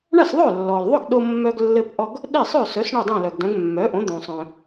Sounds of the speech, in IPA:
ɳ a˥˩ s ðˤ œ˥˩ lː ɔ˩ l ðˤ ʊ˥˩ ɡ ɗ o˧ mː œ˧ ɡ lː ɘ˧ p ʔ ɔ˧ ɡ | ɗ e˥˩ sˤ œ˥˩ s œ˩˥ s ɳ o˥˩ dˤ œ̃˥˩ l œ˩ ɡ d œ̃˩˥ ɡ mː œ˩˥ ʔ õ˩˥ d̪ õ˩ sˤ œ̃˩

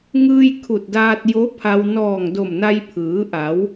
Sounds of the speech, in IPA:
ŋ ɯː˧ j kʰ u˧˩ t̚ d aː˧ t̚ j o˧˥ pʰ a˧ w n ɔː˧˩ ŋ d o˧˩ m n a˧ j pʰ ɯː˩˧ ʔ a˩˧ w

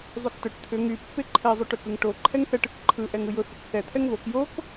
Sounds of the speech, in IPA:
zˤ y k t ʊ ʈ t̪ʰ ʏ ŋ y pː e ǃʰ ɛ zˤ y ʈ ʏ k ɯ ŋ ʈ o ǃʰ ɛ ŋ θ ɛ ʈ ɯ k ǃʰ ɯ ʔ ɛ ŋ ɯ j ʊ θ ʊ k θ ɛ t̪ʰ ɛ ŋ β o k j o k

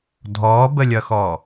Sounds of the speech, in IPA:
dʱ ɔː b ə lʲ ʌ x ɔː

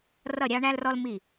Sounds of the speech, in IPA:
r ʌ˧˩ ɾʲ ɑ˧ ɳ æ˧ l r ɔ˧ l m i˧˩

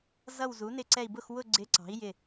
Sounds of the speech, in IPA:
z ʌ˦˨ w z u˨˥ n ɪ˦˨ ǀ ɛ˦˨ i̯ b ʊ˦˨ x w ʊ˦˨ ɡ͡ǀ ɪ˨˥ ǀ ɑ̤˨˥ i̯ j ɪ˦˨

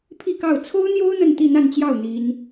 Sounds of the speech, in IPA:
pʰ i˥˧ k ɑ˥˩ ʊ̯ t͡sʰ o˥ ʊ̯ n̪ j o˥ ʊ̯ n̪ ə˥˧ n t̪ i˥˧ n̪ a˥˧ n t͡ɕ j ɑ˥˩ ʊ̯ n̪ i˥ n

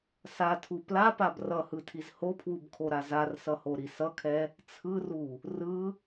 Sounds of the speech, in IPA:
s a tʰ u p l a p a b r ʌ h ɯ tʰ i z h o pʰ w u b kʰ o ɾ a z a r s ʌ h o ɾ i s ʌ kʰ ɛ | t͡sʰ ɯ r u | r ɯ

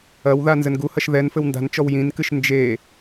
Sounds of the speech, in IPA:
ɐ w ð a n z ɘ n ɡ u h ɐ ʃ ð ɛ n f ɘ w n d a̤ n t͡ʃ ɔ w j ĩ n k ɨ ʃ n d͡ʒ e

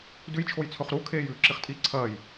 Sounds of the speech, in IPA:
d ʉ j t͡ʃʰ o j t͡sʰ ɵ χ ɾ u kʰ eː j ʉː ǁ i χ tʼ i ǀʰ ɐː j

